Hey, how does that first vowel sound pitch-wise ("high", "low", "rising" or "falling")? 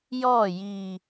falling